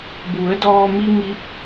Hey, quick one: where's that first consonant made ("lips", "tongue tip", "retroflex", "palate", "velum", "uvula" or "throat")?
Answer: lips